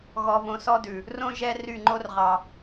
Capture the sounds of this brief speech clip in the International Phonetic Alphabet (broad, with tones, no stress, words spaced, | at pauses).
ɣɔ˧võ˧sɔ˦dʉ˨ | rõ˦ ʒɛ˦ ry˦˨ŋ͡ǃo˦rʁɑ˨